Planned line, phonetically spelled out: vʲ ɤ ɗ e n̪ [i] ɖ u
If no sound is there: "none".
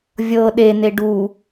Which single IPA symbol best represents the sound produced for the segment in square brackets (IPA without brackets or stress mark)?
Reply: e